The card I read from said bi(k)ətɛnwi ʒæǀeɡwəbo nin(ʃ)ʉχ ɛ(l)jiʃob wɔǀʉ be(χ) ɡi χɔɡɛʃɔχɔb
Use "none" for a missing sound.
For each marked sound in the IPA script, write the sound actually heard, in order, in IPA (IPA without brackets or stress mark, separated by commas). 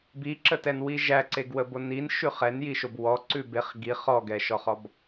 ǁ, ʃ, n, χ